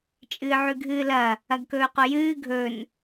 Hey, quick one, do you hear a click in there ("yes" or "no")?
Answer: no